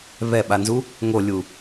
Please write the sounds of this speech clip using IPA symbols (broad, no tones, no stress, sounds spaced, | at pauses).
β ɛ ɓ a n z u | ŋ o lʲ u